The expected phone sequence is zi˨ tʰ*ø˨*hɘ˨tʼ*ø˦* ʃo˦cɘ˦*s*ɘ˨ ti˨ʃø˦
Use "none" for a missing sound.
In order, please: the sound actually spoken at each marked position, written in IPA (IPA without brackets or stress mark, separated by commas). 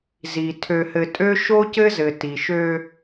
ø˨, ø˦, z